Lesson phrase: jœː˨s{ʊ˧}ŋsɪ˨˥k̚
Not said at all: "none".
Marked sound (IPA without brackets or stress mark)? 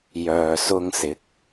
ʊ˧